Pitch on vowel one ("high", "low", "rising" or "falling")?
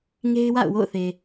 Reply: high